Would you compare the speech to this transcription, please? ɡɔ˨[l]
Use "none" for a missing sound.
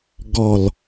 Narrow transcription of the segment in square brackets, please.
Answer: l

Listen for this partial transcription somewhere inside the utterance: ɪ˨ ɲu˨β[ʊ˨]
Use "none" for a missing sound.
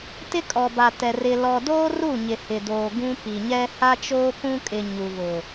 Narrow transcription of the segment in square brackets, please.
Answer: ʊ˨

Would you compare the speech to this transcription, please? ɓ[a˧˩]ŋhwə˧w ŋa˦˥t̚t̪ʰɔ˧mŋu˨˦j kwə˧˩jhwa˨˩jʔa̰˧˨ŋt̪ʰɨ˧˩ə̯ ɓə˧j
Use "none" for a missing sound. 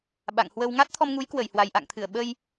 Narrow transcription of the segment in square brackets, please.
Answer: a̰˧˨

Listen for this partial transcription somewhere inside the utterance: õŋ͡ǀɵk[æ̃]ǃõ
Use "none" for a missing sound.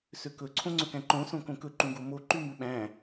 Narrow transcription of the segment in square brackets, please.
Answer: æ̃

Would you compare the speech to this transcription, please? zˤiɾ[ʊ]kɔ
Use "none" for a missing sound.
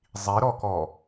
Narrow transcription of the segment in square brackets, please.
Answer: ɔ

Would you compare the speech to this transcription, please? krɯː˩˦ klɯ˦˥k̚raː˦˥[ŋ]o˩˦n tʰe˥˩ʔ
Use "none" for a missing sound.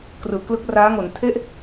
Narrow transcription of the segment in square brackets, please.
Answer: ŋ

